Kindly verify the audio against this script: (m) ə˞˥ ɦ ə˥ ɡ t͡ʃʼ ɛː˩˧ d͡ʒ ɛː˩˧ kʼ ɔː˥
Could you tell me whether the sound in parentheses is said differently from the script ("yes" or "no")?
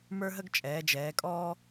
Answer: no